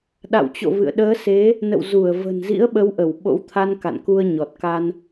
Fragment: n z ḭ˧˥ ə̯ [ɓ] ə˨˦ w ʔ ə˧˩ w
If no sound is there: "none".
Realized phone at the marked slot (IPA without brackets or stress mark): ɓ